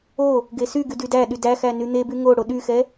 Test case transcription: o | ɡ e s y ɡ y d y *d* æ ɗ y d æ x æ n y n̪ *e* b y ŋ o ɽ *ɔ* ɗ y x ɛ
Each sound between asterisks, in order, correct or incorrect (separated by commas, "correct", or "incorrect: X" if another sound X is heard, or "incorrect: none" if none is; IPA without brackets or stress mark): correct, correct, incorrect: o